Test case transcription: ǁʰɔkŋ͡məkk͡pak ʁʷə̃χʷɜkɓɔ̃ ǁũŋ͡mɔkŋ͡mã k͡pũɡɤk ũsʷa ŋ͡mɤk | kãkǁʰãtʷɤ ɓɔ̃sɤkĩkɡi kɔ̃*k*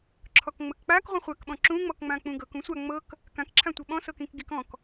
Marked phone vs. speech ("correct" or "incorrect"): correct